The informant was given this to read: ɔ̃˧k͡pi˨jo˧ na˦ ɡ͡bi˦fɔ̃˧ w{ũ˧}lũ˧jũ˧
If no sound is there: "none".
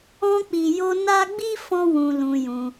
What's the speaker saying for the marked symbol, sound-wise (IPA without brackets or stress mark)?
ũ˧